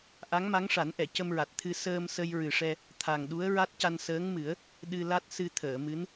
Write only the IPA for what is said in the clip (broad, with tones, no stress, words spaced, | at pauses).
ʔa˧˥ŋma˧˥ŋʂa˨˩˦nʔɛ˨˩˨ cə˧mɹa˨˩t̚t̪ʰɨ˧ səː˧msə˧jɹɨ˨˩ʂɛ˧ | t̪ʰa˨˩ŋɗu˧˥ə̯ ɹa˦˥t̚ca˧n səː˧˥ŋmɨ˨˩˦ə̯ | ɗɨ˧la˦˥t̚ sɨ˧t̪ʰəː˨˩˨mɨ˧˥n